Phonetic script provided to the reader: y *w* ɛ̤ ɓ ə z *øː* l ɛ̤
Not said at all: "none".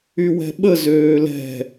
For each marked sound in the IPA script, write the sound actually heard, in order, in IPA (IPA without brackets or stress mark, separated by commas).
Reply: w, øː